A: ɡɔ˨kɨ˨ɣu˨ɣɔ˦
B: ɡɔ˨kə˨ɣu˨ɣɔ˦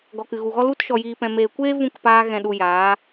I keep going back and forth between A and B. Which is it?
A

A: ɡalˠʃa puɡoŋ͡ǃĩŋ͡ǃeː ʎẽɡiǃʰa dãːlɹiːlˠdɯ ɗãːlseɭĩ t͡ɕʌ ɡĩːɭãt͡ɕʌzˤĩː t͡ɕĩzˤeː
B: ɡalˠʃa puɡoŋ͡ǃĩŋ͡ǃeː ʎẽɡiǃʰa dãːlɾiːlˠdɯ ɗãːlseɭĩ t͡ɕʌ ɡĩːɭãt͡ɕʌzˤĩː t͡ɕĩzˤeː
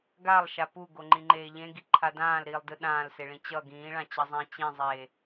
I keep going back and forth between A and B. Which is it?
B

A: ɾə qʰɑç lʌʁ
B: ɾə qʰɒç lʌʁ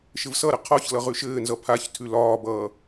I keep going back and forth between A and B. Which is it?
B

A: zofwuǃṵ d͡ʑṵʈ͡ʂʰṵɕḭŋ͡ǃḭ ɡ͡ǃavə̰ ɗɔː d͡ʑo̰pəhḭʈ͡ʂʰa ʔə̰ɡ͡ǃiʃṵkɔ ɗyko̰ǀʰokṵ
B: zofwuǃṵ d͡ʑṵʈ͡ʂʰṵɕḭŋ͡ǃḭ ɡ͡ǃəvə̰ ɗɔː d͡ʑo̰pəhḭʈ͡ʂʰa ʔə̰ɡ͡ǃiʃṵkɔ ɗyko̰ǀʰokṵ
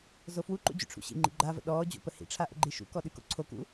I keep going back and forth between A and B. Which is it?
A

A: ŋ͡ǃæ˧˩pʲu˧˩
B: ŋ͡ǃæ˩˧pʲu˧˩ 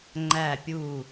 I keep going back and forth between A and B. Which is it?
A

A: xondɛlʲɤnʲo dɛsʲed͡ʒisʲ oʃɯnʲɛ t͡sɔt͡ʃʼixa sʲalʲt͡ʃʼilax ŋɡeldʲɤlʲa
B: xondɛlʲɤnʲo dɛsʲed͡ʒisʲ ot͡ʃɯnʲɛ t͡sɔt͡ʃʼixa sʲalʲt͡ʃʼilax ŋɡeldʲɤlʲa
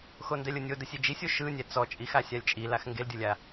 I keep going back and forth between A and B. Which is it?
A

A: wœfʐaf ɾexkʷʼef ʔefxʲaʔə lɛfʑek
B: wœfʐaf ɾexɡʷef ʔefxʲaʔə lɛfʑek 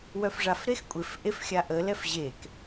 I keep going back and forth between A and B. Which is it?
A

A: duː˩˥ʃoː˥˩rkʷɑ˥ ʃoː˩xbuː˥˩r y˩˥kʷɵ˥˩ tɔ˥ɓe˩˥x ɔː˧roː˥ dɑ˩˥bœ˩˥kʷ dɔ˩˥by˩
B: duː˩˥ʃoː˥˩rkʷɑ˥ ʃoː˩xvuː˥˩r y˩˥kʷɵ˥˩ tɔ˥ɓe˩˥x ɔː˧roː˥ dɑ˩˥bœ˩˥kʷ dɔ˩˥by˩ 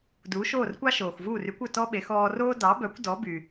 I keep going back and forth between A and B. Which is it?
B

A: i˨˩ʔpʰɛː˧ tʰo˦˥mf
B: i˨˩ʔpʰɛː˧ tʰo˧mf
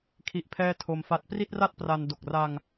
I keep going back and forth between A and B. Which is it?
B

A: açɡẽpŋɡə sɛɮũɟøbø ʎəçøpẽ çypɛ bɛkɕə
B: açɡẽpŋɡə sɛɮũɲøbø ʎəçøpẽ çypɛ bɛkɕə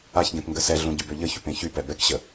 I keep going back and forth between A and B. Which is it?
A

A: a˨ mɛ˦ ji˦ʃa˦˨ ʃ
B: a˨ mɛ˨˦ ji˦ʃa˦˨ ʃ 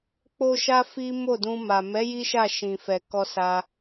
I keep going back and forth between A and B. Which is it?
B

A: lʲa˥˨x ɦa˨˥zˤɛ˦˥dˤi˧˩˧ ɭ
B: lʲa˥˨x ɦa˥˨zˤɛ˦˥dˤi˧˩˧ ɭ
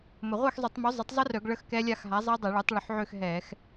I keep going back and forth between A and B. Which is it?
A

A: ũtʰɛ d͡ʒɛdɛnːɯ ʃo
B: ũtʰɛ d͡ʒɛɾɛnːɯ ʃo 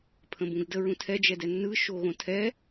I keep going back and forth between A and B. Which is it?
A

